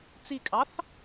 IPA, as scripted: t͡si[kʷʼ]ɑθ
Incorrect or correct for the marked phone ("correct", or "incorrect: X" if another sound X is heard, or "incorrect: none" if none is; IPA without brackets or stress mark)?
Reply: incorrect: kʼ